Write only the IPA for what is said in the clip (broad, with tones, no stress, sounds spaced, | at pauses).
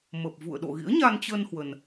m ə˨˩ p̚ v ṵ˧˨ ə̯ ɗ o̰˧˨ ɣ ḭ˧˥ ə̯ ɲ a˧ n t͡ɕ ə˧ n h w ə˧ n